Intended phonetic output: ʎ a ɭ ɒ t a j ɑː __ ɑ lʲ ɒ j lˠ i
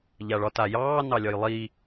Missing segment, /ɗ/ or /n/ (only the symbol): n